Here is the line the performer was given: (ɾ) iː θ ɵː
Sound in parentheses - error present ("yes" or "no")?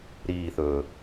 no